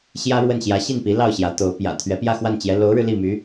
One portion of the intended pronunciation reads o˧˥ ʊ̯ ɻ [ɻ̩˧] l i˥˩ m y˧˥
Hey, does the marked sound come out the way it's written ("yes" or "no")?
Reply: yes